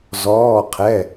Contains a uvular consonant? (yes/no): yes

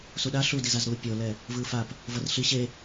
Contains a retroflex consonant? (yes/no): no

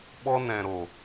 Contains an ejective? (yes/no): no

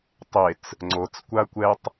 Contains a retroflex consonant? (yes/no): no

